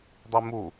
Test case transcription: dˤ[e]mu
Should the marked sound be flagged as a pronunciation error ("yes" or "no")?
yes